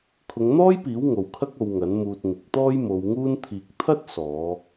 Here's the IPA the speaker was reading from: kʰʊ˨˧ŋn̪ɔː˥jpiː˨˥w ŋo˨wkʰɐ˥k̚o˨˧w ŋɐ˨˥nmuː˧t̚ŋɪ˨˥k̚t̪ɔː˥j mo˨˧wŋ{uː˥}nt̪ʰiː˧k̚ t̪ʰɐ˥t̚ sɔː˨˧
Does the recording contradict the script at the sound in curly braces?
no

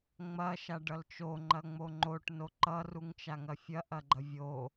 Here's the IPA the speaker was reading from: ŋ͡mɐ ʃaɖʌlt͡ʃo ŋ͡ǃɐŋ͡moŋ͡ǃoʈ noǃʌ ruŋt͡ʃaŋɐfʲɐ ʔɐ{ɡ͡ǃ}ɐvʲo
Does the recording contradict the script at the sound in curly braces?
no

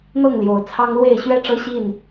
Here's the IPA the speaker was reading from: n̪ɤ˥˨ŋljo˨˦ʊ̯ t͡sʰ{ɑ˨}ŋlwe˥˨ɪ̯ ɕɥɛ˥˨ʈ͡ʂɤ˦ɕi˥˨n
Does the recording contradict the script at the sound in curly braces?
yes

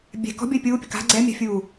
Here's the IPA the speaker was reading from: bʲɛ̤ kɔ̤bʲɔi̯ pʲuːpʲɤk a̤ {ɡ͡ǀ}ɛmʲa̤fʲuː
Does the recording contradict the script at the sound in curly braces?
no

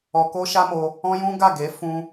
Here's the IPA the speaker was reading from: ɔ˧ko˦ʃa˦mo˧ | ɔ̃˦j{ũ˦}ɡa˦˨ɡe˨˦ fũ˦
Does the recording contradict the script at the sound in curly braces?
no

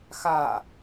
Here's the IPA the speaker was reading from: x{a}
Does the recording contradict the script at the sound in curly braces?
no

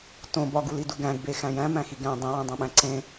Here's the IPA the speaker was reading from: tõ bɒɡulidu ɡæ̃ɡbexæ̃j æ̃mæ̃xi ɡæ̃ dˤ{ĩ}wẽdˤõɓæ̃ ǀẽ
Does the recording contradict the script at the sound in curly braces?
no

